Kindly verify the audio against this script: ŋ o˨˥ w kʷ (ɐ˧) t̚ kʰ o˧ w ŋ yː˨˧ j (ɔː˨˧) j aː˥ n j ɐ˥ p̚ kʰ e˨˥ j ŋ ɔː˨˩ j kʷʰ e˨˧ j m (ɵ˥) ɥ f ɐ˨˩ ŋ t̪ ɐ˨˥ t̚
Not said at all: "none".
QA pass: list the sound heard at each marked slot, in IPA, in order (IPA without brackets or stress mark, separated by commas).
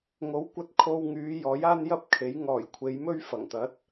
ɐ˧, ɔː˨˥, ɵ˥